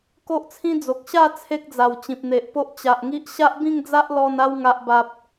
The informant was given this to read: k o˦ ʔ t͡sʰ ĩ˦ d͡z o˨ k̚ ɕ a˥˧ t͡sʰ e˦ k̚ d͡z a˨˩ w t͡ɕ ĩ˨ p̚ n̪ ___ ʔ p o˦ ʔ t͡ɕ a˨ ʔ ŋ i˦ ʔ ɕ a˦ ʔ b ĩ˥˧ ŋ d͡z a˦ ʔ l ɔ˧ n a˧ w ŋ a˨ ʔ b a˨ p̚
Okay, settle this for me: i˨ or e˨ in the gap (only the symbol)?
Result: e˨